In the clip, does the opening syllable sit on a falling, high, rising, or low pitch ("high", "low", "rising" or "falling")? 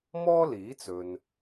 high